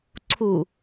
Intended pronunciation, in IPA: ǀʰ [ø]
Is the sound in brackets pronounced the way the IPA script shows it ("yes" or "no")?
no